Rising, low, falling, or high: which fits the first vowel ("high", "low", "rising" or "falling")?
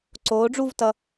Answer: rising